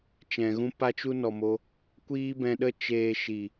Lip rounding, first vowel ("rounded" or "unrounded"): unrounded